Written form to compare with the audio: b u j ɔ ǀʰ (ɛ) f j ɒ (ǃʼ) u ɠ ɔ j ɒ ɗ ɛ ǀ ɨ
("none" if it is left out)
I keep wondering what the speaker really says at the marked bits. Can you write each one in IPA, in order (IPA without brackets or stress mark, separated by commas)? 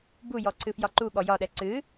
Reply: ɨ, ǃ